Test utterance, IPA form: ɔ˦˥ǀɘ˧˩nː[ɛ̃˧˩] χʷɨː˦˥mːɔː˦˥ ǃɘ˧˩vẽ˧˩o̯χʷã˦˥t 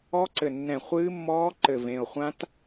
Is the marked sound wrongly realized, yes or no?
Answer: no